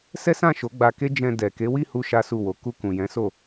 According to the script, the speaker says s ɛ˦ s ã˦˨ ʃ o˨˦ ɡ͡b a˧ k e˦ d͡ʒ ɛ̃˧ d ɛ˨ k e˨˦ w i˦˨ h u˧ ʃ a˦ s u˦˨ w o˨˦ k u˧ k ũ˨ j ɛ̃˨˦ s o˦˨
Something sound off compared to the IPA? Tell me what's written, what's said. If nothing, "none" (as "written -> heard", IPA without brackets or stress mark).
none